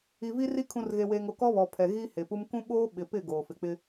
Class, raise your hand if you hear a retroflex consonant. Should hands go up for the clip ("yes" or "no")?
no